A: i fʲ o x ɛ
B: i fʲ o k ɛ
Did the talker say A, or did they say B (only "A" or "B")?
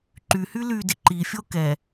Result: B